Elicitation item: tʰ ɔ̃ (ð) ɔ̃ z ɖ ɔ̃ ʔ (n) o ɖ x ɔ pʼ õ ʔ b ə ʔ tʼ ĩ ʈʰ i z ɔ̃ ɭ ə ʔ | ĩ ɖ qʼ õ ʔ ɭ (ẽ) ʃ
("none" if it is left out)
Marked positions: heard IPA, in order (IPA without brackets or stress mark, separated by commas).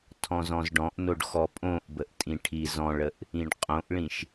z, n, ĩ